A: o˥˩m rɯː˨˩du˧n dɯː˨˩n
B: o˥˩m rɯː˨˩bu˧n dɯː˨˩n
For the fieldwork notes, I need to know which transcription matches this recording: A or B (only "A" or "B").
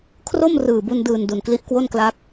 B